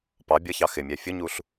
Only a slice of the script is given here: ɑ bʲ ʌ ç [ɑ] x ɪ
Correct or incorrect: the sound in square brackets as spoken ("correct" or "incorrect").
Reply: correct